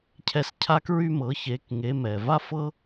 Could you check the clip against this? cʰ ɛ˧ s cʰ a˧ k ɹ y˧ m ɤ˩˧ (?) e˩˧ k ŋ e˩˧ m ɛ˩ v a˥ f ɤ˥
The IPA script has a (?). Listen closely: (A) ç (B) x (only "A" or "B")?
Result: A